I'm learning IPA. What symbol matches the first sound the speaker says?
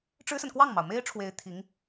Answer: ʈ͡ʂ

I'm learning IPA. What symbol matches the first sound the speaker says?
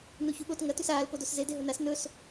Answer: n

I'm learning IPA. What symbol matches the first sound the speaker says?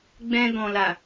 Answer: ɡ͡b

